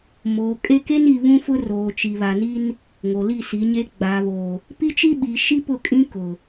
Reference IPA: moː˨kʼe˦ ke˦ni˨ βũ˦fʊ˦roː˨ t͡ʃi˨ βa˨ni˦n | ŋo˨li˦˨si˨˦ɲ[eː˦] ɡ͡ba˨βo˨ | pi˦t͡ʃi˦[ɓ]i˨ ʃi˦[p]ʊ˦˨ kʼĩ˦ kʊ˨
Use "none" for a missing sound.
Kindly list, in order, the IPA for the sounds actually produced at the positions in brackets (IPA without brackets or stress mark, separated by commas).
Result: e˦, ɓ, p